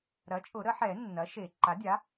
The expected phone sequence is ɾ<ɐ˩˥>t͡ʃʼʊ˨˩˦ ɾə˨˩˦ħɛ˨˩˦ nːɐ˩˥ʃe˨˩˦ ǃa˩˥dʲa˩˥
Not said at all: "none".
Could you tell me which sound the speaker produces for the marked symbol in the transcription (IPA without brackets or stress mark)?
ɐ˩˥